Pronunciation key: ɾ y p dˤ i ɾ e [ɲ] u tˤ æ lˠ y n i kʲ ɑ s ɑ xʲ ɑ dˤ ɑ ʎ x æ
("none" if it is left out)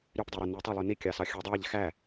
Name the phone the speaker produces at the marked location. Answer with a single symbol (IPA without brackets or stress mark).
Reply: n